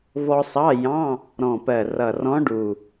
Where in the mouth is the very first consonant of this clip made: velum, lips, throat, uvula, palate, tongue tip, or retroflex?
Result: lips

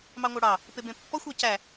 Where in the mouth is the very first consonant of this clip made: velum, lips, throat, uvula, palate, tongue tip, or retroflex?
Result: lips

